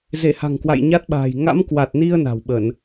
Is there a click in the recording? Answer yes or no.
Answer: no